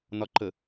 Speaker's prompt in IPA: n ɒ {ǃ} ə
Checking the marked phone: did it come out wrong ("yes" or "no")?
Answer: no